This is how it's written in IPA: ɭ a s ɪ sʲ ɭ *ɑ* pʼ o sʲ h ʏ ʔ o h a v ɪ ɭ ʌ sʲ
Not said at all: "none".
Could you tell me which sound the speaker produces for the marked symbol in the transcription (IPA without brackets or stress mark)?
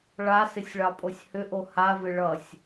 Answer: ɑ